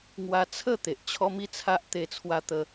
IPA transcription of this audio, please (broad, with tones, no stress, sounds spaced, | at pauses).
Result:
ŋ w a˧ t͡sʰ ə˥˧ t̪ e˨ ʔ t͡ɕʰ ɔ˦ m i˦ t͡sʰ a˦ ʔ t̪ e˧ t͡sʰ w a˧ t̪ ə˧